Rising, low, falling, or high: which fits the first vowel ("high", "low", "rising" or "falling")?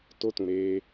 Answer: high